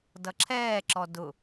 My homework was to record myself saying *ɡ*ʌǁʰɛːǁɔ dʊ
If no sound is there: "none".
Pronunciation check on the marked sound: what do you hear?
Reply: d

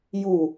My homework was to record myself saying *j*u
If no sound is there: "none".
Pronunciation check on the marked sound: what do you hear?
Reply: j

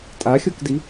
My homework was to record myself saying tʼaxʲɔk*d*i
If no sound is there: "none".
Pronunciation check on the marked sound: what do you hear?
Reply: d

